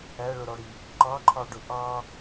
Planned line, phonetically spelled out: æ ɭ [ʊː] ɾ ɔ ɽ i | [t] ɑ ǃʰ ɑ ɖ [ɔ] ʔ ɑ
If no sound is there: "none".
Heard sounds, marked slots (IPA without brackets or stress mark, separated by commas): ʊ, ǃ, ʊ